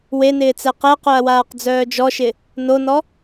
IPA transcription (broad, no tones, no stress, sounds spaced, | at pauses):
w e n ɪː t͡s ɛ q ɛ q œ ɐ̯ w aː q d͡z œː d͡ʒ ɔ ʃ ɪ | n o n ɔ